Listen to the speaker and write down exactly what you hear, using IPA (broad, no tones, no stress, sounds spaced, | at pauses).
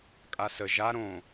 kʼ a s ə ʒ a ɾ õ